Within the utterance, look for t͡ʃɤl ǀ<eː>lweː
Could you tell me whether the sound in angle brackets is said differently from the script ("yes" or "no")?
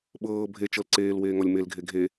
no